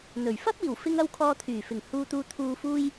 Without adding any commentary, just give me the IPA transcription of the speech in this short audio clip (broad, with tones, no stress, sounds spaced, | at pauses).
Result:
n̪ ɵ˨˩ ɥ f ɐ˥ p̚ iː˨˩ w f ɪ˧ ŋ ɐ˧ w kʰ ɔː˧ t̪ʰ yː˨˩ f ɪ˨˩ ŋ h uː˨ t̪ uː˨ t̪ʰ uː˨ f uː˧ j